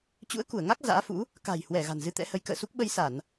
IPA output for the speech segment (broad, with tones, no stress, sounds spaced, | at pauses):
t͡ɕ ṵ˧˥ ə̯ k u˧˩ ə̯ ŋ a˦˥ k̚ z a̰ː˧˥ f ṵ˧˥ | k a̤˨˩ j h w ɛ˧˩ ɣ a̤˨˩ n z ɨ˧ t̪ ɛ̰˧˥ h ə˨˦ j k ə̰ː˧˨ s u˦˥ k̚ ɓ ə˧ j s a˧˩˨ n